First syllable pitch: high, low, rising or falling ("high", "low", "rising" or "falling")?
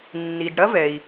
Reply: low